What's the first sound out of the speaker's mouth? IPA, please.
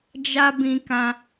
d͡ʒ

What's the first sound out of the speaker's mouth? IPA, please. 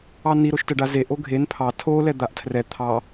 ɑ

